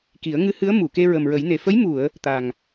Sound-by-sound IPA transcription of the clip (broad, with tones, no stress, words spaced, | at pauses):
ki˨˩˦ə̯ ŋɨ˧˥hɨ˧˥ə̯ mu˨˩˨ ke˧ ɹə˨˩mɹə˨˩˦jne˨˩ fə˧˥j mu˨˩˨ə̯ | t̪a˨˩ŋ